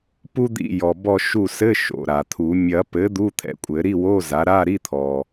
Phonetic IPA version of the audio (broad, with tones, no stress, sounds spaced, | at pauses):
p u˥ d̪ ḭ˦˨ j ɔ˩ b ɔ˦˨ ʃ u˦˨ s ɘ˧˥˧ ʃ o̰˩ ɾ a˩ t̪ʰ u˨˩˦ mʲ ɐ˨˩˦ p ɘ˩˥ d̪ u˧˥˧ t̪ʰ ɛ̰˩˥ kʷʼ ɘ˨˩˦ ɾ i˧˥˧ w o˧˥˧ z a˩˥ ɾ a˧˥˧ ɾ i˧˥˧ t̪ʰ ɔ˩